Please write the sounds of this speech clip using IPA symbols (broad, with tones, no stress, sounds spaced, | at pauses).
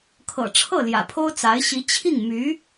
kʰ ɤ̰˨˩ ʈ͡ʂʰ ɤ˥˩ l j ä̰˨˩ pʰ o˥ ʊ̯ t͡s a˧˥ ɪ̯ ɕ i˧˥ t͡ɕʰ i˥˩ ŋ m y˧˥